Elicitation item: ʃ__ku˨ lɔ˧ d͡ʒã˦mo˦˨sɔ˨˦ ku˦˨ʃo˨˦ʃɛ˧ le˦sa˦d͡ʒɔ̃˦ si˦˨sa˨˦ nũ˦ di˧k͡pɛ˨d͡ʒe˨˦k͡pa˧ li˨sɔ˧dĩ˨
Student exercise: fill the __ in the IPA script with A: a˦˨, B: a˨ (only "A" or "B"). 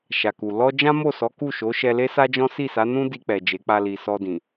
B